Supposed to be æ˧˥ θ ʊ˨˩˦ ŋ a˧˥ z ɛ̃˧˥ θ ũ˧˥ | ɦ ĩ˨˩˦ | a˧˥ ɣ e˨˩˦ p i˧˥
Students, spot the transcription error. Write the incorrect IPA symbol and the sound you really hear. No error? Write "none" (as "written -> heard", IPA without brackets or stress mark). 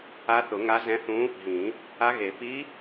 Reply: æ˧˥ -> a˧˥